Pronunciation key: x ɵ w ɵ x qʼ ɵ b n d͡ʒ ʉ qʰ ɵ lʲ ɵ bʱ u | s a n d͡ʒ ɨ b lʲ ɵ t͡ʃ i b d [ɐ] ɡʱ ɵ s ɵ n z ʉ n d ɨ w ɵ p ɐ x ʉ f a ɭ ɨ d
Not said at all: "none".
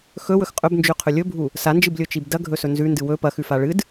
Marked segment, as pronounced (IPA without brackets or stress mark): ɐ